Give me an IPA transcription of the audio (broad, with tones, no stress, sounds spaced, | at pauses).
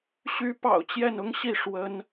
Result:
ɕ y˧˥ p ɑ̰˨˩ ʊ̯ t͡ɕ j ɛ˥˩ n ʊ˥ ŋ ɕ i˥˩ ʂ w ə˧˥ n